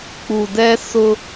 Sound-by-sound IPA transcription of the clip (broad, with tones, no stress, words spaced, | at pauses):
k͡pu˨dɛ˦ sʊ˦